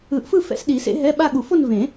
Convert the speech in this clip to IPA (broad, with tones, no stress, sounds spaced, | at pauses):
ɯ˨˩˦ ʔ f ɯ˥˧ f ɛ̰˧˥˧ s ɗ i˨˩˦ s ḛ˧˥ ɦ ɛ˧˥˧ ɓ a˥˧ ɠ u˨˩˦ f o˥˧ n v ẽ˨˩˦